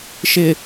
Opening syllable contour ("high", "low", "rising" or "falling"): low